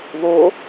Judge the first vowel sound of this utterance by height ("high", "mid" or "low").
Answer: mid